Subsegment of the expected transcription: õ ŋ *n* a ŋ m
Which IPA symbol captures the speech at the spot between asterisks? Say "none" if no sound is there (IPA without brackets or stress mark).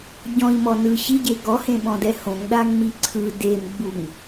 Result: ɗ